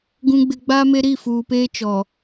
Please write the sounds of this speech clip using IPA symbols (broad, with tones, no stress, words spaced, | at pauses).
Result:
ɡũ˨ɡ͡bɪ˨ ɡ͡baː˦me˦ ɾi˦˨fuː˨peː˦t͡ʃɔ˨